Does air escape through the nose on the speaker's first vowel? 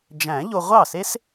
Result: yes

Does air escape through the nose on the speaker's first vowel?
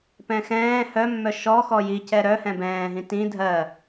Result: yes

